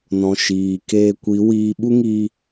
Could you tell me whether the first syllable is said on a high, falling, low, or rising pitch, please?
low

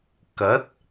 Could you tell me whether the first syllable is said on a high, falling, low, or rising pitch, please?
rising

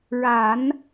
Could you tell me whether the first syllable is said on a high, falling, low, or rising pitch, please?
low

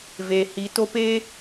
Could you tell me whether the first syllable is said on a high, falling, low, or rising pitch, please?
low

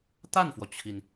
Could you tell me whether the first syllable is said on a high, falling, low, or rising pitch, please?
falling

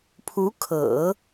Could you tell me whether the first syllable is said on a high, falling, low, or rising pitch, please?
rising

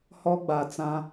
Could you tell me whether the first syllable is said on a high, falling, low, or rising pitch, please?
high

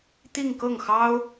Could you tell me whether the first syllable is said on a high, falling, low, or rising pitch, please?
falling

